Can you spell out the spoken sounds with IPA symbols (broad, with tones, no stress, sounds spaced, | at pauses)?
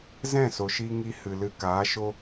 z ɛ̃˦˨ s o˨ ʃ i˧ ŋ i˧ h ɨ˨ l ɨ˧ k aː˨˦ ʃ o˦